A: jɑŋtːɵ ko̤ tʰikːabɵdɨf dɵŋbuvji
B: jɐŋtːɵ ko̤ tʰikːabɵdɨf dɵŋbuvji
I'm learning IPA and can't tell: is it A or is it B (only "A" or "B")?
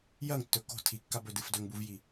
B